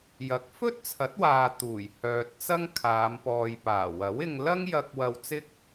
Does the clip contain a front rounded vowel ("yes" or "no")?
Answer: yes